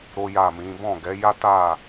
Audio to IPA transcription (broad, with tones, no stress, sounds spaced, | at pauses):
ɾ o˦ j a˦˨ m ĩ˨˦ b ɔ̃˦˨ ɡ ɛ˨˦ j a˦ t a˦˨